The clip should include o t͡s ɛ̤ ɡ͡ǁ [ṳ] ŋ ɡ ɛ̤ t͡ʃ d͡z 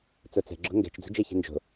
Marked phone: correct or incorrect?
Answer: incorrect